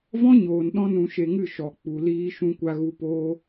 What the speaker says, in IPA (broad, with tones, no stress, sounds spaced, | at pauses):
v ɔ̃˦ ɲ oː˨ n ɗ ɔ̃˦ n ũ˧ ʃ e˧ ŋ ɨ˦˨ ʃ ɔ˨ k͡p u˨ l iː˧ ʃ ũ˧ kʷ a˧ ɣ u˧ p oː˦